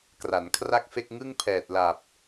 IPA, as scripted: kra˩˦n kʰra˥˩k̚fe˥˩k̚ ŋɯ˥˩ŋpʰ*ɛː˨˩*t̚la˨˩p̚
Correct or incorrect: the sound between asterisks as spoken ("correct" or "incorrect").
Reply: correct